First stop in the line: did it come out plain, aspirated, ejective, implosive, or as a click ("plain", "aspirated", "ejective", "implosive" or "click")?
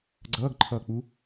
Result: click